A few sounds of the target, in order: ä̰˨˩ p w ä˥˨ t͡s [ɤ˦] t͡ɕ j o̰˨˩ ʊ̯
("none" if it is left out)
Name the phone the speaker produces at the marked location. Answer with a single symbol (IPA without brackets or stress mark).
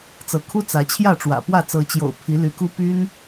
ɤ˨˦